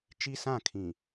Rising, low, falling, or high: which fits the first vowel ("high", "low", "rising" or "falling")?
high